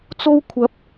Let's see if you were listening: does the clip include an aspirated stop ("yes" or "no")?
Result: yes